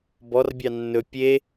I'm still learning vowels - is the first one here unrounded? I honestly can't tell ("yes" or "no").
no